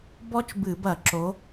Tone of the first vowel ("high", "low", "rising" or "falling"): high